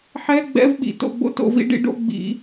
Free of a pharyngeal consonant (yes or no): no